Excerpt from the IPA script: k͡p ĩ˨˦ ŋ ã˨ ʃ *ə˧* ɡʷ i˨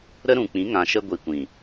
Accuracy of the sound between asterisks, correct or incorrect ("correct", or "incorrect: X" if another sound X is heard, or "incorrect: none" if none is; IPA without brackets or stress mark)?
correct